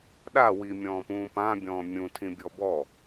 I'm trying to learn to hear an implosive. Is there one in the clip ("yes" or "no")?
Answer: yes